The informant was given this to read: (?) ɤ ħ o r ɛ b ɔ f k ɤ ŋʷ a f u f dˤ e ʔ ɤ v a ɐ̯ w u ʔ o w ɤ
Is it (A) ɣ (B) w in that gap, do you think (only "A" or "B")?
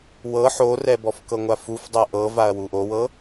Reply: B